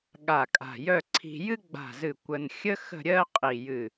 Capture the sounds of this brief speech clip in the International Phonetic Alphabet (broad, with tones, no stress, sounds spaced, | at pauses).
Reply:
ɠ a˧˩ kʼ a̤˧˩ j œ˥˧ ǀʰ i̤˧ j ɨ˥ ɡ͡b a̤˧˩ z ɨ˧˩ kʷ ə˧ n xʲ ə˥ x ə̤˥˧ ɾʲ ɜ˥ qʼ i˧˩ j ɨ˧˩